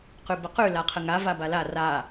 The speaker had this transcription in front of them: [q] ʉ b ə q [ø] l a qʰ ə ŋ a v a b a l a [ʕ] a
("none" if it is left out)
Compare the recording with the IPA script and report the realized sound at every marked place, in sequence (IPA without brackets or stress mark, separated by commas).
q, ʉ, r